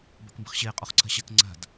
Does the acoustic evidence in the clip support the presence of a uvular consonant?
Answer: yes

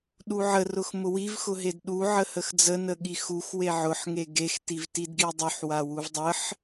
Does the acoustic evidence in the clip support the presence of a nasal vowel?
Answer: no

